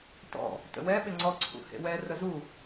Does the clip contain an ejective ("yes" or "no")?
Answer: no